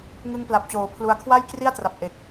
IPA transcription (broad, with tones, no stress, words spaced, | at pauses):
ŋɯ˦˥ŋpla˨˩p̚t͡ɕoː˩˦ pʰlu˦˥a̯ kʰwa˥˩jkri˥˩a̯tra˨˩p̚ ʔe˨˩k̚